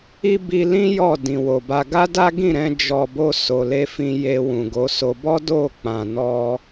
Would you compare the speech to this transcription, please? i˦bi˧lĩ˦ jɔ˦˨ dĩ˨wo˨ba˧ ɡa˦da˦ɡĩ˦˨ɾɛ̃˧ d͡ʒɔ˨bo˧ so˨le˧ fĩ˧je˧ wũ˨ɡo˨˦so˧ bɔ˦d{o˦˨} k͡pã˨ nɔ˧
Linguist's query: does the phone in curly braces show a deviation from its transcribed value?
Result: no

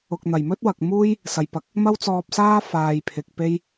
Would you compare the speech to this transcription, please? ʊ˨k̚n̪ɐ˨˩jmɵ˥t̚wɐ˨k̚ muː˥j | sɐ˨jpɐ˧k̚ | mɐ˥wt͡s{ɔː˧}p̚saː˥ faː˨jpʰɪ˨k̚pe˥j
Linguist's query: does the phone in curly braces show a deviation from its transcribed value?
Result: no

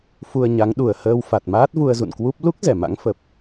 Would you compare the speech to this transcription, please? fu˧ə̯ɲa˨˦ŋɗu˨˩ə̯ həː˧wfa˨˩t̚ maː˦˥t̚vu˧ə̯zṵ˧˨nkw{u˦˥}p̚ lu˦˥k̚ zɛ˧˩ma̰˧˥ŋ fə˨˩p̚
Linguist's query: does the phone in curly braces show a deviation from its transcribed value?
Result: no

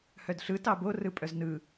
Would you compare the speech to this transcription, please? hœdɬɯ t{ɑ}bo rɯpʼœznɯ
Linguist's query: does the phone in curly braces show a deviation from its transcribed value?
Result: no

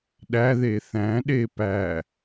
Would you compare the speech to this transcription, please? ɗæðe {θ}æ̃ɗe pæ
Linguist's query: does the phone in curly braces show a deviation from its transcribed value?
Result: no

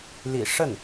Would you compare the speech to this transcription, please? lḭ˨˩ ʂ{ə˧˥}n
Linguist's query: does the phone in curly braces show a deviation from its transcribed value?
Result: yes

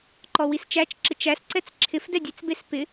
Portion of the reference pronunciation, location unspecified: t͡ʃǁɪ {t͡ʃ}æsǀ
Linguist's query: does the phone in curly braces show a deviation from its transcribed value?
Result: no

